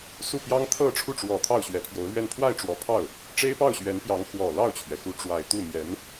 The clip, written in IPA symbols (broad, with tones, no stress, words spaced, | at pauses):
su˥˩pjɑ˥ŋ t̪ʰɤ˥˧ ʈ͡ʂʰu˥˩ʈ͡ʂwɔ˨˩ t̪ʰɑ˥˩ʊ̯ɕɥɛ˧˥pʰjo˧˥ʊ̯lɥɛ˥˧n pʰwa˥˩ɪ̯ʈ͡ʂwɔ˧˥pʰɑ˥˩ʊ̯ | ʈ͡ʂe˥ɪ̯pɑ˥˩ʊ̯ɕɥɛ˧˥npjɑ˧˥ŋ xwɔ˨˩lɑ˥˩ʊ̯t͡ɕʰɥɛ˩xu˧˥ ʈ͡ʂwa˨˩ɪ̯t̪u˥˩ mjɛ˧˥n